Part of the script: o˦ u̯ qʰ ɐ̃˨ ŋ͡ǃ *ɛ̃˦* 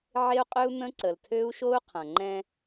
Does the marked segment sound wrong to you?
no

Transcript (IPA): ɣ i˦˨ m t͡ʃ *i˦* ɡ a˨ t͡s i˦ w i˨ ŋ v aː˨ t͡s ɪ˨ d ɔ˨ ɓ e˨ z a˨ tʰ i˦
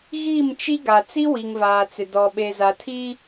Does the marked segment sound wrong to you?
no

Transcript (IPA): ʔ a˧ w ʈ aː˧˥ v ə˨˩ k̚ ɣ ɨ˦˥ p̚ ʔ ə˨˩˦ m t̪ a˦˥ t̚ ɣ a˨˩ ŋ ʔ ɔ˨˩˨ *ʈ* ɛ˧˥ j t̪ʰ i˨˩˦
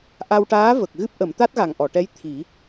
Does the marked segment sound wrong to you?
no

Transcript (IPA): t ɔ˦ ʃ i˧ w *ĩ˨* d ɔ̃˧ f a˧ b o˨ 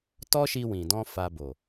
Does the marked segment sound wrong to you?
no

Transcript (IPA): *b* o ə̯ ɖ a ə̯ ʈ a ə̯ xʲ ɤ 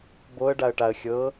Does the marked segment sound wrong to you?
no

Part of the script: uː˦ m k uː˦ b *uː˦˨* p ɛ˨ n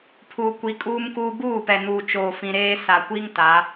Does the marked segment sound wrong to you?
no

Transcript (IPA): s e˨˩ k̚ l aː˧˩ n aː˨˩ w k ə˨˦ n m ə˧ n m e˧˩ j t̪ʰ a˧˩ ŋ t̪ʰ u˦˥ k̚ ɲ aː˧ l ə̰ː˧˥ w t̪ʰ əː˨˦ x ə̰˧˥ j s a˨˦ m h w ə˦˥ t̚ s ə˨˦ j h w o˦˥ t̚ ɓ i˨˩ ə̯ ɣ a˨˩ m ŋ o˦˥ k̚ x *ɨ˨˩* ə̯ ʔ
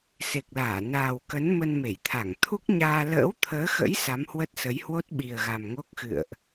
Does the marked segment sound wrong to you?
yes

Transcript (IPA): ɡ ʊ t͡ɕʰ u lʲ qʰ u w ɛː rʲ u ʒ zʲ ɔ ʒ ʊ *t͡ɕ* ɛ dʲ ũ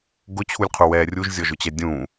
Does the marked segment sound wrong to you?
no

